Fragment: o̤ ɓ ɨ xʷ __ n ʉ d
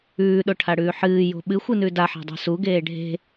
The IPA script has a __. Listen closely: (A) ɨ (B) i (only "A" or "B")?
A